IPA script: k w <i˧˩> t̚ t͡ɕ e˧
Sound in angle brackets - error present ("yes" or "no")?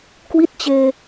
yes